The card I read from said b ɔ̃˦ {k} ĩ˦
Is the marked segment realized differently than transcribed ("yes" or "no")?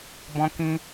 no